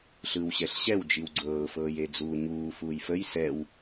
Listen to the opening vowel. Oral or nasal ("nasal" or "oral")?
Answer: oral